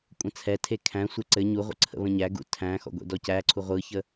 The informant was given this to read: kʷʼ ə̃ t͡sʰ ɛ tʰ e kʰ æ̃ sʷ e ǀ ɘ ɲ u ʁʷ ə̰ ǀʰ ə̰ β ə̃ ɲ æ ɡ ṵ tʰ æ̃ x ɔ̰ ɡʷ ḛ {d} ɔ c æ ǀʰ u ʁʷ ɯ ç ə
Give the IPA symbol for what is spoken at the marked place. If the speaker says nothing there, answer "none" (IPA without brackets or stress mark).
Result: d